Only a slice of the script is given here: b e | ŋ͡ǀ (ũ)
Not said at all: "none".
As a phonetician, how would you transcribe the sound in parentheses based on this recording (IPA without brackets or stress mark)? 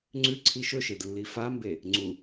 u